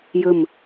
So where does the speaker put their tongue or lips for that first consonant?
palate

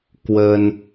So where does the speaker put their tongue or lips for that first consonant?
velum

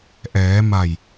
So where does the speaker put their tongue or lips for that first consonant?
throat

